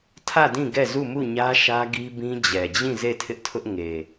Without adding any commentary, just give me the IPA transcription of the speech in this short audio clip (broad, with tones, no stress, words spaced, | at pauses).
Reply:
tʰä˦˨ dĩ˦˨ ɡɛ˦˨zu˦˨mu˦˨ɲä˦ ʃä˦ɡi˦bĩ˦ d͡ʑɛ˨d͡ʑĩ˦˨ ze˦˨tʰɪ˦ʔtʰʊ˦ʔ ŋe˨